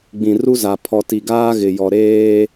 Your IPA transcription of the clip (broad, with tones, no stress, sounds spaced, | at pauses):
ɡ͡b ĩ˨ r u˦ z a˨ pʰ ɔ˨ t i˨ ɡ aː˦ ɣ ɪ˨ j ɔ˨ ɾ eː˦